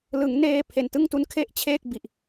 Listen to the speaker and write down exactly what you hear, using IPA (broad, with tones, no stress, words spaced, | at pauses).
lɯ˩˦ŋ neː˧ pʰe˨˩ntɯ˥˩ŋtu˦˥n kʰe˥˩ʔt͡ɕʰeː˥˩k̚ bi˨˩ʔ